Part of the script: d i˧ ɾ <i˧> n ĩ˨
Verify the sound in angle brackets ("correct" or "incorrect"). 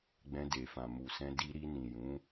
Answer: correct